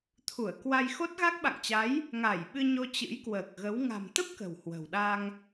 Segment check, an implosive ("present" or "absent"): present